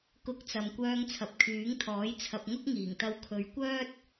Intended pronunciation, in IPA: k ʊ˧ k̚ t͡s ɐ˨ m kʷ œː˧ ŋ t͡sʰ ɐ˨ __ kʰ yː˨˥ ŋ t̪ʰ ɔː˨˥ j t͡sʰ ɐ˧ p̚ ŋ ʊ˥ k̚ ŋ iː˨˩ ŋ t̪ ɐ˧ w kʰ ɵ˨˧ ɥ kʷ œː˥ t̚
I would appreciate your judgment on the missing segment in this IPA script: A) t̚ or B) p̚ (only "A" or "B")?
B